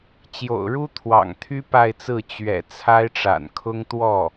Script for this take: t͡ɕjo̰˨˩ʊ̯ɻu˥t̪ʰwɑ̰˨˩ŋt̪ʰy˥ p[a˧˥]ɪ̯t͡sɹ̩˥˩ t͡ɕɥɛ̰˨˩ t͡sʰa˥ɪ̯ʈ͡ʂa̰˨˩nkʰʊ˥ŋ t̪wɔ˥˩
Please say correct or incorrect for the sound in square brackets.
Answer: incorrect: a˥˧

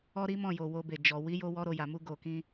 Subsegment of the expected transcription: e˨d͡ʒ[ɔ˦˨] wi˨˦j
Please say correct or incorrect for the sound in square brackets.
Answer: incorrect: ɔ˨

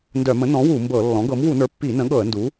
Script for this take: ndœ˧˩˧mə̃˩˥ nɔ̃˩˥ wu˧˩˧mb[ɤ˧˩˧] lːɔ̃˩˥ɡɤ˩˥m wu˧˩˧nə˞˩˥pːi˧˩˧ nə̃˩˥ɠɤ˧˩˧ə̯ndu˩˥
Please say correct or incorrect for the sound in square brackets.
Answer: correct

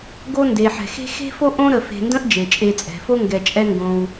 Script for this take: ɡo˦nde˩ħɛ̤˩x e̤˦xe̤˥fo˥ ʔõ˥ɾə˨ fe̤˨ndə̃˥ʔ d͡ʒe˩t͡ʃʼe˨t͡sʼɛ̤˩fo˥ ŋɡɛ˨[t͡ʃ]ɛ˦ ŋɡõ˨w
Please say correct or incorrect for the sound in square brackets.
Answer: incorrect: t͡ʃʼ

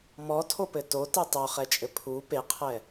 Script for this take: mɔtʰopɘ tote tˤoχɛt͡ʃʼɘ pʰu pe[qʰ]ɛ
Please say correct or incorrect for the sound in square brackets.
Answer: correct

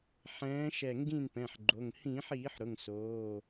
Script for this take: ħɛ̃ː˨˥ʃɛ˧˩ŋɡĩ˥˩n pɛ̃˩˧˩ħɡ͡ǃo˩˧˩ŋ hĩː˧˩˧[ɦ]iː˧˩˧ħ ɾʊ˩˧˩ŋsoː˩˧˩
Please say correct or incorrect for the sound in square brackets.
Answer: incorrect: ħ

